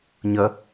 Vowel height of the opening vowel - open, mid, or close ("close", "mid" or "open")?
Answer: open